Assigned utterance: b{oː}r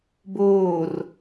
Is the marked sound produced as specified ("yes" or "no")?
yes